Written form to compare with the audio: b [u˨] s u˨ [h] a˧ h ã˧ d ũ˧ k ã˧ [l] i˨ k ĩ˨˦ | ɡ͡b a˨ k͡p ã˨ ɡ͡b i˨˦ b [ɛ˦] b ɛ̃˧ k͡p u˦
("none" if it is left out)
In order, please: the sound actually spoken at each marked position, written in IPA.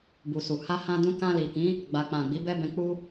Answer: u˨, h, l, ɛ˦

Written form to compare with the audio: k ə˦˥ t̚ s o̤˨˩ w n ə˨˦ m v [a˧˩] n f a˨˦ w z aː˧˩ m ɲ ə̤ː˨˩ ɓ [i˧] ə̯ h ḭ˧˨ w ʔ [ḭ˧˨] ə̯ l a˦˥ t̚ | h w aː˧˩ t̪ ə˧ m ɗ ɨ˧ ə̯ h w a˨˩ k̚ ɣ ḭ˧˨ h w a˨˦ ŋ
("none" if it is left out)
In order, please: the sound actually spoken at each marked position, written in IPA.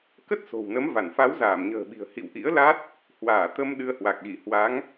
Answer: a˧˩, i̤˨˩, ḭ˧˥

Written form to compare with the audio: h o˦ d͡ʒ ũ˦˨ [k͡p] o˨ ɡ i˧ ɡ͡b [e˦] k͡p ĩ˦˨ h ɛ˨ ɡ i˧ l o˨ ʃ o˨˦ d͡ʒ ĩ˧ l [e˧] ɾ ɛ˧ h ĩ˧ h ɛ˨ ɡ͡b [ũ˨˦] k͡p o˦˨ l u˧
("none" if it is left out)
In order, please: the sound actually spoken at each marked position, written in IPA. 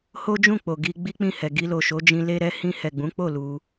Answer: k͡p, i˦, e˧, ũ˨˦

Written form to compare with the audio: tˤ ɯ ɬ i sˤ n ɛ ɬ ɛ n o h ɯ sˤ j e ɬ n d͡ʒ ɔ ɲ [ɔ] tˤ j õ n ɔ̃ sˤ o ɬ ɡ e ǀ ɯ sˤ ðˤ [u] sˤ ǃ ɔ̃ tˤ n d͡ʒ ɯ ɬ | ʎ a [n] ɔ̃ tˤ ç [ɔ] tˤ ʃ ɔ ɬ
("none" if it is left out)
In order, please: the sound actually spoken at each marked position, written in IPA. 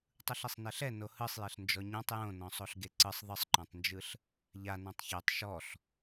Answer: ɔ̃, ɯ, n, o

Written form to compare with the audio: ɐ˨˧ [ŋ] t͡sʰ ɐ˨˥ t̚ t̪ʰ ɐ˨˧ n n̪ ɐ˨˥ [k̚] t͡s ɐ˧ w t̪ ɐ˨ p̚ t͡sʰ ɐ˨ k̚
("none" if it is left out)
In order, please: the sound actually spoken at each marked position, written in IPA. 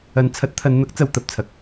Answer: n, k̚

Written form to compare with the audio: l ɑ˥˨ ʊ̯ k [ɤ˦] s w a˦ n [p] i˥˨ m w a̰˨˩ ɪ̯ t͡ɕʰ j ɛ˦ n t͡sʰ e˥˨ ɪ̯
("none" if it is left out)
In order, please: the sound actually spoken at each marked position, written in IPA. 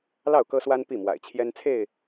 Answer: ɤ˦, p

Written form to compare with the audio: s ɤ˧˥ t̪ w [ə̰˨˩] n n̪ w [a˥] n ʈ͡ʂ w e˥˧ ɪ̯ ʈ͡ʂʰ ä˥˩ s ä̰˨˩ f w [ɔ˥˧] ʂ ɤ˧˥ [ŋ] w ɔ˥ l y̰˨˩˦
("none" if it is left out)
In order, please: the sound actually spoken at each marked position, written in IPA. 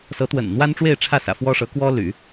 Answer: ə̰˨˩, a˥, ɔ˥, k

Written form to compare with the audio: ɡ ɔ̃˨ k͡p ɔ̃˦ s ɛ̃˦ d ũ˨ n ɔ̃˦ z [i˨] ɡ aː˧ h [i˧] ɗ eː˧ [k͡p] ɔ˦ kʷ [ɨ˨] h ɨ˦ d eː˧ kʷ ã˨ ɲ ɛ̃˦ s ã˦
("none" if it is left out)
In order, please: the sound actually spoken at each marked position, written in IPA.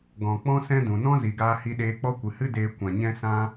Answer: i˨, i˧, k͡p, ɨ˨

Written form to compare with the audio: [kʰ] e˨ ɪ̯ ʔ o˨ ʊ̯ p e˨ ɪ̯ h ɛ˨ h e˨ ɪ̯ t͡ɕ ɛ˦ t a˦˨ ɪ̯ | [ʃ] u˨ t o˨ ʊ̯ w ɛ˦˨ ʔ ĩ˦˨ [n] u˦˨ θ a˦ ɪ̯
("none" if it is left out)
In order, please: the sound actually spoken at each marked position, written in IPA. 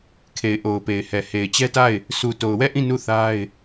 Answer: kʰ, s, n

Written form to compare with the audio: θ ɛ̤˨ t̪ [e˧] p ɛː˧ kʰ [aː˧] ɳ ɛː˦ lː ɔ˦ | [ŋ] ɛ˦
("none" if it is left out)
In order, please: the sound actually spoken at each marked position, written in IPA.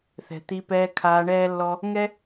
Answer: i˧, aː˧, ŋ

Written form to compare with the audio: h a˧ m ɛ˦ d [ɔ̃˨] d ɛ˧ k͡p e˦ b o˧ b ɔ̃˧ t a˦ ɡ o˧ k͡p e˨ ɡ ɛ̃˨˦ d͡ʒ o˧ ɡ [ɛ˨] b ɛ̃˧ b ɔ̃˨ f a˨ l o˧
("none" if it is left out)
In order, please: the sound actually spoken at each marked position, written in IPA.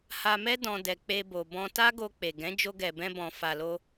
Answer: ɔ̃˦, ɛ˨

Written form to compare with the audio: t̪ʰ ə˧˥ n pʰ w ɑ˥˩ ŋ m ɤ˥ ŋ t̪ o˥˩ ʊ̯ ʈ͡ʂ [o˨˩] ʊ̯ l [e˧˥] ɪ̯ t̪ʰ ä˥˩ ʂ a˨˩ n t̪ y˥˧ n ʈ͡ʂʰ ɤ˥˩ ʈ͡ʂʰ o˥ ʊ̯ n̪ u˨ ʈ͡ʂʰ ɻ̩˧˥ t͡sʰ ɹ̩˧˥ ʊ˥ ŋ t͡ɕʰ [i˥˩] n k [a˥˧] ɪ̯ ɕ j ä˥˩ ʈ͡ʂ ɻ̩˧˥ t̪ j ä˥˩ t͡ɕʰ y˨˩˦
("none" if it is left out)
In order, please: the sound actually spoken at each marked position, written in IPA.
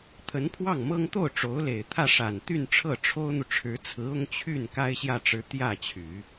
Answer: o˧˥, e˨˩, y˥˩, a˥

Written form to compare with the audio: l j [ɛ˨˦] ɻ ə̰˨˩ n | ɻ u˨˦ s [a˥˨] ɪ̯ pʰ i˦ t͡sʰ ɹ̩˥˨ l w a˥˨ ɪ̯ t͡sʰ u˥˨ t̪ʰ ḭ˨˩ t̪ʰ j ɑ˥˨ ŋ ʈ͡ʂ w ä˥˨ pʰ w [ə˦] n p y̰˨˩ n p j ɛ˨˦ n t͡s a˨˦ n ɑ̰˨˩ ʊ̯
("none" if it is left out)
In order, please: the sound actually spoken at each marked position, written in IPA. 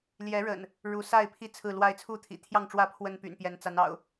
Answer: ɛ˨˦, a˥˨, ə˦

